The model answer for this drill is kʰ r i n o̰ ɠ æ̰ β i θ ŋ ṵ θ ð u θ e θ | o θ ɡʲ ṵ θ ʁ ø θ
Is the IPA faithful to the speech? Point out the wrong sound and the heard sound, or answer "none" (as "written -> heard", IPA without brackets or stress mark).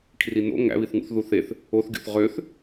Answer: ɠ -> ŋ